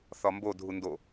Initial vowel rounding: rounded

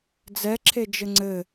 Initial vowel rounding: unrounded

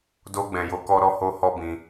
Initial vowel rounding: rounded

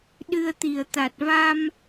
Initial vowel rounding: unrounded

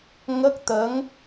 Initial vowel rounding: unrounded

